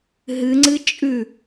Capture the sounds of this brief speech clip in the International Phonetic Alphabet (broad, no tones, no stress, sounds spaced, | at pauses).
ɦ ɨ ŋ͡ǀ ɨ t͡ʃʼ ʉ